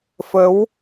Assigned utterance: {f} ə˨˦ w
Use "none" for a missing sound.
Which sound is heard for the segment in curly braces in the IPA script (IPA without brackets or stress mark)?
f